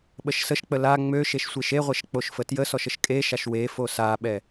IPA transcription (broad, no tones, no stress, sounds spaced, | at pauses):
ɓ ə ʃ s ə ʃ k͡p ə l a ŋ͡m ø ʃ e ʃ sʷ e ʃ e ʁʷ ɛ ʃ k͡p o ʃ f ə t j ə s ɔ ʃ ə ʃ kʼ e ʃ a ʃ w e f o s a ɓ ɛ